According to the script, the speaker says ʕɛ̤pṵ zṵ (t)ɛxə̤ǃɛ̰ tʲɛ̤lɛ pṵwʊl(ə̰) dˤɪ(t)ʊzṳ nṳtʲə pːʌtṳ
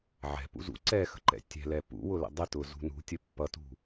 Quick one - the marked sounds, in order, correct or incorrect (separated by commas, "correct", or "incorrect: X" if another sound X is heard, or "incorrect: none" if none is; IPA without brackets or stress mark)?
incorrect: ǀ, correct, correct